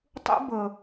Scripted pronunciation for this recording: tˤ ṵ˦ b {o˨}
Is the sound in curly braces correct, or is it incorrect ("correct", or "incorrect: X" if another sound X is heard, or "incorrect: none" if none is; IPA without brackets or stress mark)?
incorrect: ɤ˨